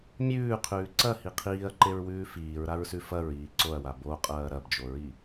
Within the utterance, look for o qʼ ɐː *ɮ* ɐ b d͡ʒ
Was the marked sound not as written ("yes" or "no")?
yes